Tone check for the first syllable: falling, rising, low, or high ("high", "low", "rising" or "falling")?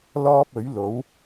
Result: high